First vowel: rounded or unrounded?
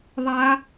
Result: unrounded